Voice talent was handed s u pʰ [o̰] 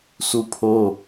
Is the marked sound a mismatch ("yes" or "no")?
yes